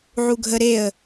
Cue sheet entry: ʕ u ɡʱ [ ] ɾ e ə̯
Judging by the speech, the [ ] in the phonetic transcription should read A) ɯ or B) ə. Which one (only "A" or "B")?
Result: B